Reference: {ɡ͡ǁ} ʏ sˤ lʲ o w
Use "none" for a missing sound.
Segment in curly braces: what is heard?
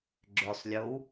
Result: ɡ͡ǁ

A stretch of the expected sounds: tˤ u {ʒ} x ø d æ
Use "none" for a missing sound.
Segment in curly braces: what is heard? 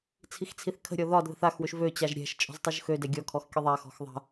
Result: ʒ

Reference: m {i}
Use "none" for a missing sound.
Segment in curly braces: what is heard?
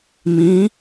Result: ĩ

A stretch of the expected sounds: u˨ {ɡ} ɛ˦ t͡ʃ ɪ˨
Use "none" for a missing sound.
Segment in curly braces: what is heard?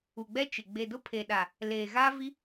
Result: ɡ͡b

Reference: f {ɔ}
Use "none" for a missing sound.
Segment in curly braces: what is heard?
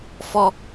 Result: ɔ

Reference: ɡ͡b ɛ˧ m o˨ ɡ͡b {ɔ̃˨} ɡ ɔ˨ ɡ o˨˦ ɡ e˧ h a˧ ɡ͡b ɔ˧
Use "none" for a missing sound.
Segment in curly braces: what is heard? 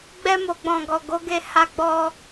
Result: ɔ̃˨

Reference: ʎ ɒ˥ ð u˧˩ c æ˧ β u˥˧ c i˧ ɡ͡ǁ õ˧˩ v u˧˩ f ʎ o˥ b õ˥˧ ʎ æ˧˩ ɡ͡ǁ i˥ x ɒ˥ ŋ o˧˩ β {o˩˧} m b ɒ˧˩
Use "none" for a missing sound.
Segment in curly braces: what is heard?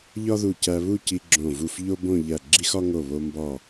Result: o˧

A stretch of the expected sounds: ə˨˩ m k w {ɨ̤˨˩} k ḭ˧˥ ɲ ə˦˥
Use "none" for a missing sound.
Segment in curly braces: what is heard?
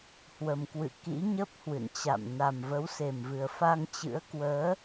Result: ɨ̰˧˨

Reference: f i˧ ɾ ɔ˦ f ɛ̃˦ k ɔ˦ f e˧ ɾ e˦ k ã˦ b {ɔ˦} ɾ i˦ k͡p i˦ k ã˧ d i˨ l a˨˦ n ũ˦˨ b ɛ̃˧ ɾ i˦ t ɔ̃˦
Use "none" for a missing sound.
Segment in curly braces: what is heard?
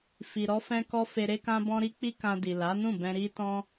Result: ɔ̃˦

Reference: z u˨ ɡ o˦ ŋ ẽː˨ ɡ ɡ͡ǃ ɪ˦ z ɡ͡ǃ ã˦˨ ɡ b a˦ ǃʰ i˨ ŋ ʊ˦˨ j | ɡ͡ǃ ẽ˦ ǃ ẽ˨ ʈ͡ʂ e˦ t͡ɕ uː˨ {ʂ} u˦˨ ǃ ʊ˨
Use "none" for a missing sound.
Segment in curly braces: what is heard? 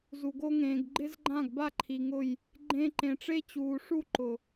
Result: ʂ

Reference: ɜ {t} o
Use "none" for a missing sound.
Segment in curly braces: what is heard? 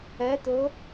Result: t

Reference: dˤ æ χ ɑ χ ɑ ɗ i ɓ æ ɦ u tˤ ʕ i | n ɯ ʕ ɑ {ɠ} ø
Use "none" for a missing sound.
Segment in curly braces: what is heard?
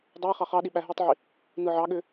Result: ɠ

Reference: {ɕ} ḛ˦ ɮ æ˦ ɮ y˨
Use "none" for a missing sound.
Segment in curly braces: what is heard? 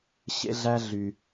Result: ɕ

